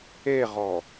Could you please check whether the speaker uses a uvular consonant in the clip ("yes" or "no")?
yes